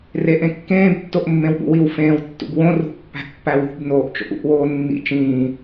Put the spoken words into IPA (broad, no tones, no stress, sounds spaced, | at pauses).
r e ʔ ẽ kː ẽː b tː o ʔ mː ẽ w ɓ ṵ w i w f ẽː w tː ṵ b w õ r ṳ pː æ̤ ʔ pː æ w ṳ b n oː ʔ t͡ʃ o̰ ʔ ṵ ʔ w oː nː ḭ t͡ʃ ĩː